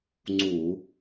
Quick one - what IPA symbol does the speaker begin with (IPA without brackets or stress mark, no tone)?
ŋ͡ǀ